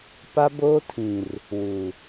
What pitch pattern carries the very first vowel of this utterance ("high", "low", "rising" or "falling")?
high